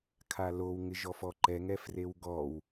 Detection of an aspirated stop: present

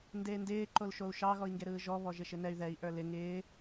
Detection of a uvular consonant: absent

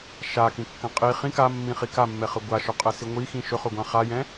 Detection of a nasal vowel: present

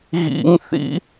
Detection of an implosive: absent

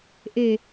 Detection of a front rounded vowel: absent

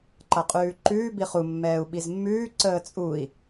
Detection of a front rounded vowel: absent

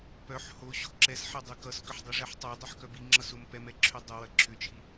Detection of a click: present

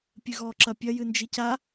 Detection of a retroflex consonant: absent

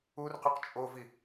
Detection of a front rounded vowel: present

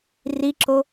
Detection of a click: present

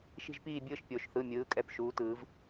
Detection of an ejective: present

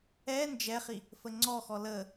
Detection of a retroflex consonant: absent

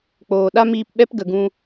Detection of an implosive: present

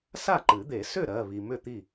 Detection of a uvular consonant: absent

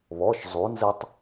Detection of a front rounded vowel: absent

